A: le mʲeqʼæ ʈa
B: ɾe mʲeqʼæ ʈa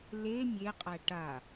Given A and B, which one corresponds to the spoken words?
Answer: A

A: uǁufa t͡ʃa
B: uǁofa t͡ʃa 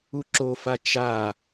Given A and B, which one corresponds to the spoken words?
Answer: B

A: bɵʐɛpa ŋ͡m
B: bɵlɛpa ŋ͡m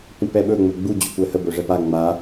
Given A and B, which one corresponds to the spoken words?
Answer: A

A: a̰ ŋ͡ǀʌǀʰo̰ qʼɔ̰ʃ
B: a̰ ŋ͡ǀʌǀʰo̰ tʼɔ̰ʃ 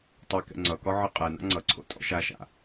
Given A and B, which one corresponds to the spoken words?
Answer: B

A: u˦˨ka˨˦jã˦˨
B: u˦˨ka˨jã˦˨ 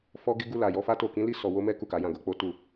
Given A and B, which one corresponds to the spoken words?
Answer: A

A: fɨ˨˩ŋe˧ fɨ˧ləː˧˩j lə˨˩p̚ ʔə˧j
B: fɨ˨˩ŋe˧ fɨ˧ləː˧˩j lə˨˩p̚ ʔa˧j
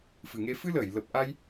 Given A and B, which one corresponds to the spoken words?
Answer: B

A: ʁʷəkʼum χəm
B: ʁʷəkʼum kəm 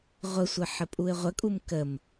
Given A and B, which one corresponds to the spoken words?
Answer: B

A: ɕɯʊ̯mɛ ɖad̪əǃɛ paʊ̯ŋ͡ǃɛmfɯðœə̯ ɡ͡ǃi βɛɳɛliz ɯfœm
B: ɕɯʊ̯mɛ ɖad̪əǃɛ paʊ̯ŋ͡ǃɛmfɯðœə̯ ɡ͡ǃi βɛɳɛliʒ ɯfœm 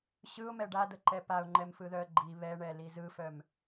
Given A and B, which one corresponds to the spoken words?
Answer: A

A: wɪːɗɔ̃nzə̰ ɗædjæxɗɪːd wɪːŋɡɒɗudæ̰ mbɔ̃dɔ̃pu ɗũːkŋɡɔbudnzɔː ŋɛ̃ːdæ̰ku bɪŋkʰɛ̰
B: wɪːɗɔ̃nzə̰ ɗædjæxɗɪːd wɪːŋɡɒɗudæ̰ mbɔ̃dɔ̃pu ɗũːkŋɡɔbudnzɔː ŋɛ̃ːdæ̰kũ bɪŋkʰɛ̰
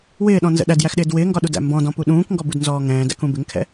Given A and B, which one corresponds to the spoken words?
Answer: B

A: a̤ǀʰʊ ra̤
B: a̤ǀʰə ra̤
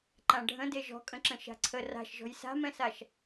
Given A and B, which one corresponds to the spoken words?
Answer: B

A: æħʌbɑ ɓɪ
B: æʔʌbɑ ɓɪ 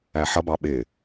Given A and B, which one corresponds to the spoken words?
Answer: A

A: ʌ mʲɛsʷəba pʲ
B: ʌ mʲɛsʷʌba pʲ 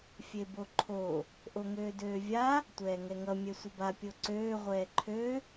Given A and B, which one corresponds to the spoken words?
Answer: A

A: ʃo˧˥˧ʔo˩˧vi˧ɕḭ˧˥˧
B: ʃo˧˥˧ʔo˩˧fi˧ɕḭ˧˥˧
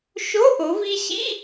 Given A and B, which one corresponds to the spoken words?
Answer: A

